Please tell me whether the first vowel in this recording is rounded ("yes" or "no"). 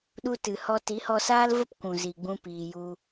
yes